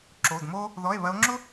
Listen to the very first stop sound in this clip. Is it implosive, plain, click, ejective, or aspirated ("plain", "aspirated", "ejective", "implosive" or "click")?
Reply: click